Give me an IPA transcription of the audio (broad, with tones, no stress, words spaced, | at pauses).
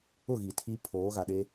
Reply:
ʊ˦˨ ɣi˨tʰi˦ pʰoː˨˦ɣa˨ɗe˦